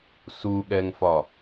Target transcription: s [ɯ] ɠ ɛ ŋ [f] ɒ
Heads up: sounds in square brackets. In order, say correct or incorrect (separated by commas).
incorrect, correct